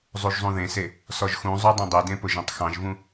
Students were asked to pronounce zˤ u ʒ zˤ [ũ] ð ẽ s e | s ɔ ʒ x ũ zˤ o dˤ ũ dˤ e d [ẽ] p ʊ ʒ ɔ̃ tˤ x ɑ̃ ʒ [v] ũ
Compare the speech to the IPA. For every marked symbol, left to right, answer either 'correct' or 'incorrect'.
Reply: correct, correct, correct

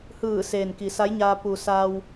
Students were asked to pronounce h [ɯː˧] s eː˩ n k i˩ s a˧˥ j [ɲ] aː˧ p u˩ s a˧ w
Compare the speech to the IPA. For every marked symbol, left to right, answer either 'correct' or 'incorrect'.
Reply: incorrect: ɯː˧˩, correct

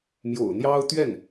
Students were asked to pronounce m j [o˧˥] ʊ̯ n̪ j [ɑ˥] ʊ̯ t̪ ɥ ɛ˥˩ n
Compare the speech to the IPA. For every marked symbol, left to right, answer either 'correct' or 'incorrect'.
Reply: incorrect: o̰˨˩, correct

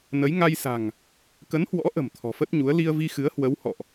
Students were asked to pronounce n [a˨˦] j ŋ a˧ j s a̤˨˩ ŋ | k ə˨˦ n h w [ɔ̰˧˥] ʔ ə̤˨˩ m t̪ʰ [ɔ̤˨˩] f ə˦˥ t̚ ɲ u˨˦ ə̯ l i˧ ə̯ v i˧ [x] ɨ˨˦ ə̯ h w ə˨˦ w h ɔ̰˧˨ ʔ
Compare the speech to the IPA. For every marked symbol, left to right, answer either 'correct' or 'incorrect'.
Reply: incorrect: ə˨˦, correct, correct, correct

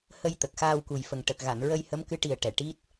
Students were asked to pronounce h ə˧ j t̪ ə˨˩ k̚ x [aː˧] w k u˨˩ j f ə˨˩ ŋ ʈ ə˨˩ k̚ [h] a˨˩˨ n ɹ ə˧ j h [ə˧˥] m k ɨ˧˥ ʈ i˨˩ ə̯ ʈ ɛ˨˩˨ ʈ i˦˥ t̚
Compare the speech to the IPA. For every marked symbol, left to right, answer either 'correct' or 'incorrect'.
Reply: correct, incorrect: ɣ, correct

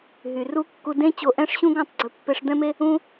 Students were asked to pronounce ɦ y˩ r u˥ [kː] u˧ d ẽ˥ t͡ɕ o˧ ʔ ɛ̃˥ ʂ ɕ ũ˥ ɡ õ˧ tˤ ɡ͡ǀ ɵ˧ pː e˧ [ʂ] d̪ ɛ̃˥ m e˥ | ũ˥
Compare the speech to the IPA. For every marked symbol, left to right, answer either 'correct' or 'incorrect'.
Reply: correct, correct

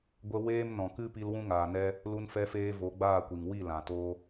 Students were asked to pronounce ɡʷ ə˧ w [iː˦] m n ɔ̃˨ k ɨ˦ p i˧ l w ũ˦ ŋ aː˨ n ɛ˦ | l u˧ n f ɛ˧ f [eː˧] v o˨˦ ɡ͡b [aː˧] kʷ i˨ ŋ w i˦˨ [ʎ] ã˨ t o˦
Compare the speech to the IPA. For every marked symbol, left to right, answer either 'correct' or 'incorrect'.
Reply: incorrect: eː˦, correct, incorrect: aː˦˨, incorrect: l

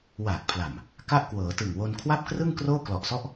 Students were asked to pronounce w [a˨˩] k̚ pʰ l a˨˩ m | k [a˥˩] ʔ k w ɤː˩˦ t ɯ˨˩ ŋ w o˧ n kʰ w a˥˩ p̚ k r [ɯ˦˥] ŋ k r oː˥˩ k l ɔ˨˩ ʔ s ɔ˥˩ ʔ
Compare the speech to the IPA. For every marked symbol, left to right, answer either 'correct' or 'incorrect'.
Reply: incorrect: aː˨˩, correct, incorrect: ɯ˥˩

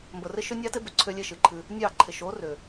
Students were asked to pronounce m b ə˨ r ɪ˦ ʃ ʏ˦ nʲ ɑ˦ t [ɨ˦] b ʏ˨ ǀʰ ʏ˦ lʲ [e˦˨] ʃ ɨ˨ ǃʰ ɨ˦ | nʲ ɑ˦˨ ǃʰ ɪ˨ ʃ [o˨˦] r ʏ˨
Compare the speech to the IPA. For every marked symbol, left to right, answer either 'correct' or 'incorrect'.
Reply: incorrect: ɪ˦, incorrect: e˦, correct

